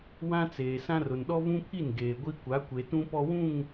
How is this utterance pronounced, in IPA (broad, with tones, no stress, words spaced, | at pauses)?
wã˦t͡seː˨sã˦r ʊ˨nɗɔ˦vũ˦pʰi˦˨n ɡeː˨ɡʷi˦ kʷa˨˦kʷe˨ tũ˦pɔ˦wũ˦˨ŋ